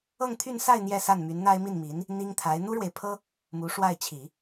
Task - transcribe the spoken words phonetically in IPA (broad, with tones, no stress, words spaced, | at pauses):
ɤ˥˧ŋt̪ʰy˥˧nsa˥˧ɪ̯ n̪jɛ˥˧sa˥˩nmy˧˥n n̪a˥ɪ̯mi˥˩nmi˧˥n | n̪i˥ŋt̪ʰa˧˥ɪ̯ n̪u˥ɻwe˨ɪ̯pʰɤ˥ | mu˧˥ʂwa˥˩ɪ̯t͡ɕʰi˨˩˦